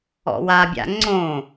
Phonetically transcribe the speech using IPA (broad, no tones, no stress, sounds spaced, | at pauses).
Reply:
ɔ̰ w a bʲ a̰ ŋ͡ǀ õ